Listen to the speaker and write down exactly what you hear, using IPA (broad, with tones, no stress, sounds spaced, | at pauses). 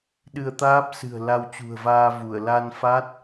ɗ ɨ˧ ə̯ t̪ aː˦˥ p̚ s ɨ̤˨˩ ə̯ l a˧ w t͡ɕ ṳ˨˩ ə̯ v aː˧ v u˧˩ ə̯ l a˧ n f a˦˥ t̚